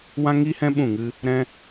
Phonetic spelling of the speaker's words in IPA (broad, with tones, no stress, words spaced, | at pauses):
wã˧ŋi˧hɛ̃˧ ɓũ˦˨ŋɨ˦ | ɾɛ̃˦